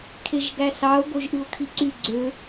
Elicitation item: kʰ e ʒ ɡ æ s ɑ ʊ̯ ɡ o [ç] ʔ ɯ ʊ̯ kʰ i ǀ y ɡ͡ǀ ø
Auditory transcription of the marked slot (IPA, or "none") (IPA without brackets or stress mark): ʒ